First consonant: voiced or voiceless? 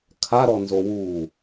voiceless